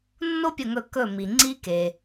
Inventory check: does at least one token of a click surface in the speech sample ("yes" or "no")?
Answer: yes